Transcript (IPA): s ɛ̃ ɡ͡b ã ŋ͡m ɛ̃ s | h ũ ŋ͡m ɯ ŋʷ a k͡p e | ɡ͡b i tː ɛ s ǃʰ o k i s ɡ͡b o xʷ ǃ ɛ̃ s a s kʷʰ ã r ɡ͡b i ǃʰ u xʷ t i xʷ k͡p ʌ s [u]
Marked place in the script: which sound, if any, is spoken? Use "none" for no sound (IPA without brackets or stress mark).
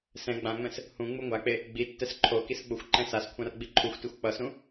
ũ